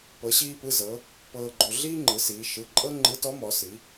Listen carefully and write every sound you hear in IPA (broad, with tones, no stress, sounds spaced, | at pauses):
p ɤ˩˧ ɕ iː˧ p ɯ˩˧˩ z ɤ˩˧ | p ɤː˧ ɡ͡ǃ o˧ ɮ iː˥ ŋ͡ǃ ɯ˩˧ s iː˩˧ ʃ ɯ˩˧˩ ǃʼ ɤ˥ ŋ͡ǃ ɯ˧˥ t ɔ˧˥ m ɔ˩˧ s i˩˧